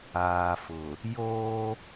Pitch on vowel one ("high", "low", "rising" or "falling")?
low